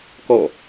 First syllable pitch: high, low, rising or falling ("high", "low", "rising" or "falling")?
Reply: falling